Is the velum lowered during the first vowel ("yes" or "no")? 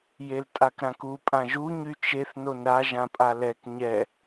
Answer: no